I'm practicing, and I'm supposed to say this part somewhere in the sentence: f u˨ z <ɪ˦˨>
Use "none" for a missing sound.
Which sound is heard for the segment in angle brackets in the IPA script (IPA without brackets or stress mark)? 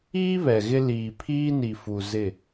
ɪ˦˨